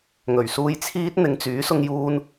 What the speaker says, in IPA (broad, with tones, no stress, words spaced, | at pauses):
ŋɵ˨˩ɥsuː˧jt͡sʰiː˥t̚n̪ɪ˧ŋ t͡syː˨˥sʊ˧ŋjuː˧n